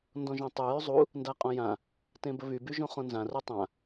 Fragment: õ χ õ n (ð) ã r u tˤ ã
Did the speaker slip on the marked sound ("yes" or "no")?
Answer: yes